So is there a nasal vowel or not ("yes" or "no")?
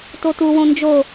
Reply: yes